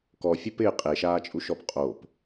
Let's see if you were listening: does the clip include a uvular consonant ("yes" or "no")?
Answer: yes